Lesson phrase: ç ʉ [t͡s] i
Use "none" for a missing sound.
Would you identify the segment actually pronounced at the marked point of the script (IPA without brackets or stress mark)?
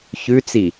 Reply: t͡s